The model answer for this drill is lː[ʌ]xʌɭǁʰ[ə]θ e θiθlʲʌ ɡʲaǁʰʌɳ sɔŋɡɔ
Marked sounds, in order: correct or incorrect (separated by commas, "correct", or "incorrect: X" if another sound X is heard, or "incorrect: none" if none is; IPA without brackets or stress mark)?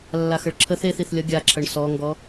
incorrect: a, correct